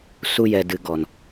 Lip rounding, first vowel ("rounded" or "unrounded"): rounded